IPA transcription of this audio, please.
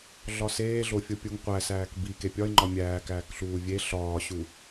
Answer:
ɮ ɒ s eː ɮ o fʲ o pʲ u ŋ qʷ æ s æː k b i k e pʲ ɒ ɪ̯ ŋ͡ǃ ɒ mʲ æː k æː k ɬ uː vʲ e ɬ ɒː ɕ u

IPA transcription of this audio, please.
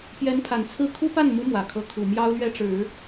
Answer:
p j ɛ˧˥ n pʰ a˨˩ n t͡sʰ ɹ̩˥ kʰ u˥ p a˥˩ n m u˧˥ m w ä˨˩ kʰ ɤ˧˥ kʰ u˨˩ m j ɑ˥ ʊ̯ l ɥ ɛ˥ ʈ͡ʂ ɻ̩˨˩˦

